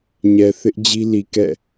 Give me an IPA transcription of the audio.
ɲɛ˨θɪ˦ʔ d͡ʑi˦li˨kɛ̰˦˨

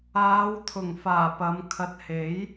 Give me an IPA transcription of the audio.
aː˨˧w t̪ʰʊ˨˩ŋfaː˨˩pɐ˨˧m kʰɐ˧t̚ he˨˥j

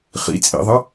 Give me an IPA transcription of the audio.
χḭt͡sʼḭðˤɐ

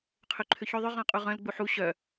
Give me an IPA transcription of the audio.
qʰøǃʰʏçø ðˤʏ ʁɔ̃qʼuʁœ̃l ɡ͡buħu ɕœ

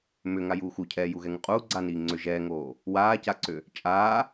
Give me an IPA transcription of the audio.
mʏ ŋajuːxucʰɛː juɣɛŋuqʼuː ɡ͡ǀaniː ŋ͡ǀʏ ʒɛːŋoː | waːcaǀʏ | t͡ʃʼaː

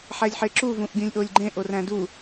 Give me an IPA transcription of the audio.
ħælʲħeǁu vũʔɡʲũlʲʔolʲɡ͡ǃẽ ʔoræ̃du

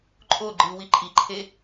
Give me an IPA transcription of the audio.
ǃʼo ɡ͡ǃɨ wiǃʼiǃʰe

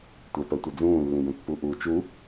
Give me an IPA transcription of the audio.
tʷœpɜtʷɘ d͡zũːlːĩbœ̃pːu ʔuːt͡ʃu

